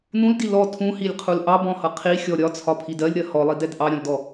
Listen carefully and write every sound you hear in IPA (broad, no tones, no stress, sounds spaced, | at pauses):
n ũ l d i l ɔ tʰ ũ h i lʲ qʰ u l ʔ ɑ b ɔ̃ h ʌ qʰ i xʲ ɔ ɾʲ ɒ t͡sʰ ɒ pʰ i d ɜ lʲ ɾ ɜ h ɔ lˠ i d ɛ d ʔ ɑ ɾʲ ɔ̃ l d ɔ